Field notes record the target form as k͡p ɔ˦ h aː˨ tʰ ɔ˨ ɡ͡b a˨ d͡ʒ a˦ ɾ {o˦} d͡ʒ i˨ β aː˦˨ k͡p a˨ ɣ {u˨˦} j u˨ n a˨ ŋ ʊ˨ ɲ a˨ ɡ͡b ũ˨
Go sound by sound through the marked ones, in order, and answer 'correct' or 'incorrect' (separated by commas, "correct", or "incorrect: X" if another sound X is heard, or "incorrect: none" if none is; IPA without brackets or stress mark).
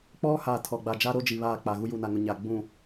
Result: correct, incorrect: u˦